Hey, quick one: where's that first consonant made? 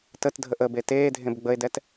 tongue tip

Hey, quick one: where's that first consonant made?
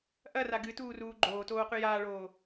throat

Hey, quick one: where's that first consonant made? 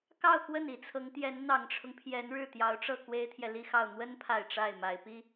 velum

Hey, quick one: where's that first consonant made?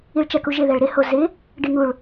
retroflex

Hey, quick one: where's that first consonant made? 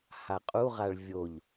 throat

